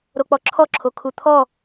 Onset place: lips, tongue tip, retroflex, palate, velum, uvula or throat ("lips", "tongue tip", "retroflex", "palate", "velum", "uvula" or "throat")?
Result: tongue tip